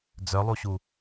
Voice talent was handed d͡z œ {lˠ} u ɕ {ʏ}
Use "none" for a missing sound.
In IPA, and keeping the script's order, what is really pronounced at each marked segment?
lˠ, u

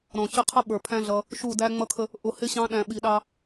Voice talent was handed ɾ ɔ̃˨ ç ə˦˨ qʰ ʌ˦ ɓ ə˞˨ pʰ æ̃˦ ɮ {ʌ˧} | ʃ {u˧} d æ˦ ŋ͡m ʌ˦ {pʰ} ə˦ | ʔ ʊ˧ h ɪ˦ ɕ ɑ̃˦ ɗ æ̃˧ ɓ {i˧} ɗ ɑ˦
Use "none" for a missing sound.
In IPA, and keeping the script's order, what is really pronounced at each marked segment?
ʌ˧, u˦˨, kʰ, i˧

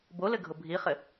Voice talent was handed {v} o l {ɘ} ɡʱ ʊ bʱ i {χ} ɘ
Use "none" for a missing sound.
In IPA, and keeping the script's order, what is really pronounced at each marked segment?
b, ɘ, χ

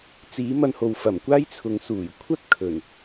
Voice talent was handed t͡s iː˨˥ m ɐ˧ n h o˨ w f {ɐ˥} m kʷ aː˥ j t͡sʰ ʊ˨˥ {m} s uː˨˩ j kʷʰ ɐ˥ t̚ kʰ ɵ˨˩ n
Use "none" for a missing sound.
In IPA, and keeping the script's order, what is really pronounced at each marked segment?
ɐ˨˩, ŋ

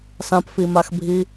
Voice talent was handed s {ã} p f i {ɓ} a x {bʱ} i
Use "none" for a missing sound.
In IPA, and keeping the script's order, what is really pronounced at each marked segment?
ã, m, bʱ

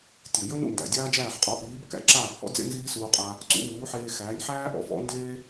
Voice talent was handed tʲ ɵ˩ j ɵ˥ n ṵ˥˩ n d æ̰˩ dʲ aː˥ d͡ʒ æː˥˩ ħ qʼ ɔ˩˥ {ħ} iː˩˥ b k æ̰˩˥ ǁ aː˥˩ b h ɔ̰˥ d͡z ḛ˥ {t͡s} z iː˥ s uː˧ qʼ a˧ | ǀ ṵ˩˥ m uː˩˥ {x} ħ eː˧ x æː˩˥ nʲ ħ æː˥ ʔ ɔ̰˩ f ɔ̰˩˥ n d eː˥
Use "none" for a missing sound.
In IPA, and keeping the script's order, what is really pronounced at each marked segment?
ʔ, n, none

